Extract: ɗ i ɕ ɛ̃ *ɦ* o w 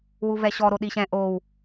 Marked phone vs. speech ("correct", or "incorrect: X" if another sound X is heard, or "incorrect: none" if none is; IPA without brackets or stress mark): incorrect: ʔ